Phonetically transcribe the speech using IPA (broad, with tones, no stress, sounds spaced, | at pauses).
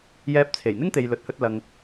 j ɛː˧ p̚ t͡sʰ e˨˩ j n̪ ɪ˥ ŋ t̪ e˨ j l ɵ˨ t̚ h ɵ˧ t̚ l ɐ˨ ŋ